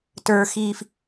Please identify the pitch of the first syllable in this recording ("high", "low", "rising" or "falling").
low